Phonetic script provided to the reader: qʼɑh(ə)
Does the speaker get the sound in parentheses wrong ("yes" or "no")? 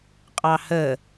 no